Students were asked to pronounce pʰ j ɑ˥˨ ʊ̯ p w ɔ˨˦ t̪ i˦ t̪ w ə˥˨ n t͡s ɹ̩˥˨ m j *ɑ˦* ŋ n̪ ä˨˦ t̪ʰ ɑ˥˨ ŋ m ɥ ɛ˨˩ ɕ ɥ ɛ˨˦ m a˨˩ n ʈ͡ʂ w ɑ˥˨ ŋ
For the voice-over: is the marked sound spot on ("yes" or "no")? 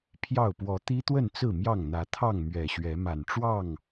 no